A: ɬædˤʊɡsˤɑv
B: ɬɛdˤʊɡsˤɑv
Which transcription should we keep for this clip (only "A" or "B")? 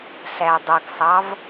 A